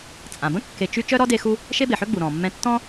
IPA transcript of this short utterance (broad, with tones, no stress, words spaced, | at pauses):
t͡sʼã˩bə̃˥kːe˨ t͡ʃy˥ t͡ʃœ˥ɾɔ˥ de˦xu˥ | ʃe˥be˩ħø˥ɡ͡bu˩ ɾɔ̃˩mːɛ̃˦ tːɔ̃˥